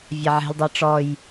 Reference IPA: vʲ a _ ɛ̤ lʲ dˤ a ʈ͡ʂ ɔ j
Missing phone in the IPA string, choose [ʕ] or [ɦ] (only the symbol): ʕ